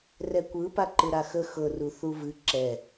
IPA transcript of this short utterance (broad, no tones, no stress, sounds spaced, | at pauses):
r ɛ kʷ ɯ p a ǃ ɯ ɾ a x ə x ɤ r u θ u v ɨ ǁ ɛ